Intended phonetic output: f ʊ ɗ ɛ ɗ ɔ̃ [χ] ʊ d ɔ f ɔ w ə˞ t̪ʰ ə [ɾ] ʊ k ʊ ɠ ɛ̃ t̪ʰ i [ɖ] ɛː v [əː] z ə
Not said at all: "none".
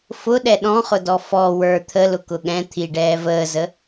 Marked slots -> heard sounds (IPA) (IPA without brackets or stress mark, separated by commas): χ, l, ɖ, əː